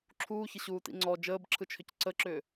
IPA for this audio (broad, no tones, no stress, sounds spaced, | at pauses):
ǁʰ uː ç ɪ ɕ uː t ḭ ŋ͡ǀ ɔ d͡ʒ əː b ǁʰ ɯ t͡ʃʰ ʏ c ǀ ə ǁ ʏː